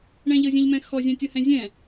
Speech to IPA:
ɳ ɛ̃ ʎ ɤ zʲ ɛ̃ ʎ m ɛ̃ x ɔ zʲ ɛ̃ tʲ ɤ h ɛ̃ zʲ ɛ̃

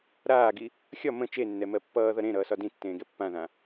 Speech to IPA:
ɾ aː ɡ i | xʲ ɒ m ə̃ t͡ʃ e nː ɛ m ɜ pː ʌː ð ʌ ɾ ẽ ɾ ʌː s ɒ d ĩ tː ẽː ɡ ɛ pː ã ð ã

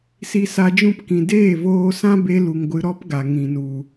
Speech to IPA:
s i˧ s a˧ d͡ʒ ũ˦˨ p k ĩ˨ d eː˦˨ v oː˧ s ã˦ b e˧ l u˨ ŋ ɡʷ ɨ˧ ɾ ɔ˦ p ɡ a˨ ŋ ĩ˨ n u˨

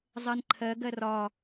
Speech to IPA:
zˤ ɜ n ǃʰ ɜ ɡ ɜ r ɒ

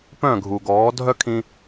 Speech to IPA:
p œ̃˦˨ ɡʱ u˨ ɡ ɔː˨˦ dʱ œ˦ kʰ ĩ˧

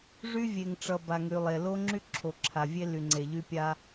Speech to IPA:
ʐ y˦ vʲ e˨ ŋ ʈ͡ʂ ʌ˨ b a˨ ŋ y˨ lˠ e˨ l o˦ ŋ͡ǁ y˦ ǁʰ o˨ ǁʰ a˨ vʲ e˦ l y˨ ŋ͡ǀ e˨ ʎ y˦ pʲ a˦

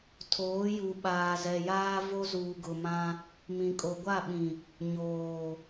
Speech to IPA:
tʰ oː˨˦ j u˨ ɓ aː˨ z ɛ˨ j aː˦ v o˦ z uː˨ ɡ ʊ˨ m ã˦ | m ĩ˨ kʼ o˨ ɡʷ a˦˨ ɓ ĩ˨ | ɲ oː˨

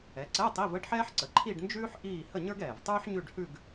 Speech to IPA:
ɛ˩˥ ǀ ɛ˧˥˧ tˤ i˧˥˧ v ə˧˥˧ ɖ ħ ɛː˥ ħ ǀ ə˩˥ ǃʰ i˥˧ ɖ n d͡ʒ ʉː˥ ħ ʔ iː˥˧ h ə˥˧ ɲ ə˞˥ ɡ ɛː˨˩ v tˤ ʉː˥ ħ ɲ ʉ˥˧ ɖ h ʉ˥˧ ɡ

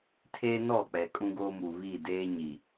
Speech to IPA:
tʰ eː˦ n ɔ˦˨ k͡p ɛ˨ kʼ ũ˦ ɡ oː˦ m u˨ β i˦˨ d eː˦ ɲ i˨

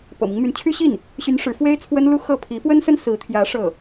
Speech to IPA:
p ɤ̰˨˩ m i˦ ŋ m y˧˥ n t͡ɕʰ y˥ ɕ i˥˩ n | ɕ y˧˥ n ʂ ɻ̩˧˥ f w e˥ ɪ̯ t͡sʰ w ə˥ n l u˥ x ɤ˥˩ pʰ i˧˥ f w ə˥ n s ə˥ n s ɹ̩˧˥ t̪ʰ j ä˧˥ ʂ ɤ˥˩

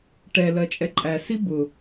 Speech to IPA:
ʈ ɛ l ɜ t͡ʃʼ ɛ ǃʼ æ s i b ʊ

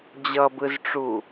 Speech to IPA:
d͡ʑ ʌ b ɯ z ʈ͡ʂ u

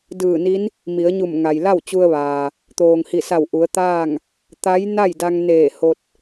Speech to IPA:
d ɯː˧˩ n i˧˥ n | m i˩˧ ə̯ ɲ u˧˩ m ŋ a˩ j l a˥˨ w t͡ɕ u˧ ə̯ ʋ aː˩ | t̪ oː˩ ŋ h i˧˩ s a˧˩ w ʔ u˩˧ ə̯ t̪ aː˥˨ ŋ | t̪ a˧˥ j n a˥˨ j d a˧ ŋ n eː˧˩ h o˧ t̚

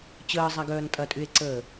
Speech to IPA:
t͡ɕ əː zˤ a ɡ œː n tʼ ɐ tʼ y e̯ ǀ əː

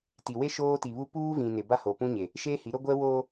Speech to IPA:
t i˨ w e˦ ʃ oː˦ t i˨ β u˦ p uː˦ v ĩ˨ n ɪ˨ b a˦ h o˨ p ũ˦ ɲ e˨ | ʃ eː˦ h i˨˦ ɾ o˦ ɡʷ ɛ˦ w oː˦

